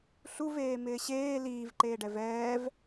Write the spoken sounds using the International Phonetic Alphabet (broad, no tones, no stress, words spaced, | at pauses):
ɬuveːmɪː ɕeː liːvǃeːɖɛv ɛːv